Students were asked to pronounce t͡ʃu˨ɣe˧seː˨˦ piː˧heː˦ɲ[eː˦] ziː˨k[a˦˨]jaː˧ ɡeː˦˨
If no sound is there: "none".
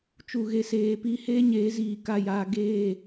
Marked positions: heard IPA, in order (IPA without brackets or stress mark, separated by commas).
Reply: eː˨˦, a˦˨